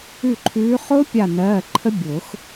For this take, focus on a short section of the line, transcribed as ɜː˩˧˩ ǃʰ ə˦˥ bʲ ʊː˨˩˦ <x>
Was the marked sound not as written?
no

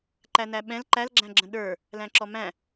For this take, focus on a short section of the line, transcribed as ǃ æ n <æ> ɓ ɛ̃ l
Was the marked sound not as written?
no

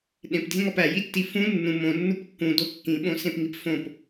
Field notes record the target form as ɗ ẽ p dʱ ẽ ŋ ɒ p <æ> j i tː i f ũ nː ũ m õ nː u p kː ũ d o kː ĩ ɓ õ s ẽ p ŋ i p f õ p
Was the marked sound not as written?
no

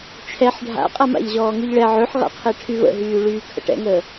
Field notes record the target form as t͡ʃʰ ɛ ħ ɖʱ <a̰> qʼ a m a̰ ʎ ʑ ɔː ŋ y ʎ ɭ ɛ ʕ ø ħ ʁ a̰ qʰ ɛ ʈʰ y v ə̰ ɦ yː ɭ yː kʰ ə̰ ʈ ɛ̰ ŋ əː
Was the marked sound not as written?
no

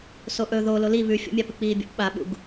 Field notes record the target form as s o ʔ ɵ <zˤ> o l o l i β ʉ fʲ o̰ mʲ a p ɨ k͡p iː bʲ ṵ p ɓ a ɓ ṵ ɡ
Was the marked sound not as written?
yes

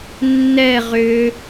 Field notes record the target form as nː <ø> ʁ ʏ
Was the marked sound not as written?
yes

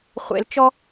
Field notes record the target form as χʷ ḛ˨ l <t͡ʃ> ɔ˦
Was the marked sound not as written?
no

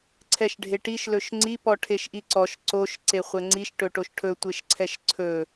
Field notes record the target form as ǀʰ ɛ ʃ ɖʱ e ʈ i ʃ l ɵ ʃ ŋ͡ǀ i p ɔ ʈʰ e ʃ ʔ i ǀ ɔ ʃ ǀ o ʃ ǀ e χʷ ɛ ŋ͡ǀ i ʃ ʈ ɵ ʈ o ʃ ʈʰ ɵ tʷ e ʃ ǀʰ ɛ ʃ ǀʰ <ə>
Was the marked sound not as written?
yes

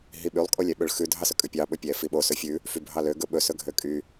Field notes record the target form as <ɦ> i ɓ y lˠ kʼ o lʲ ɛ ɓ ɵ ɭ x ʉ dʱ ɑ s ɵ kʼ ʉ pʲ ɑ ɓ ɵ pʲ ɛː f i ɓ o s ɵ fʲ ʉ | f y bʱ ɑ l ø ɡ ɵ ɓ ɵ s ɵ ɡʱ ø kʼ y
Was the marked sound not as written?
no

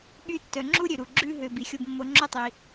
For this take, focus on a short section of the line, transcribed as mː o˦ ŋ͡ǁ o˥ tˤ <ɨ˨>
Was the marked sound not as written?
yes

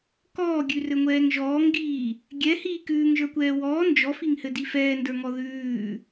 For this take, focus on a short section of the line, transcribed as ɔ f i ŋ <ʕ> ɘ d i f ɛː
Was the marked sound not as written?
yes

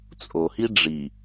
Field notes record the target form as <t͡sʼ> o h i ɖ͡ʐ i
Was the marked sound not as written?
no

